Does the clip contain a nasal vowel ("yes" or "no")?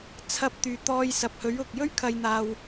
no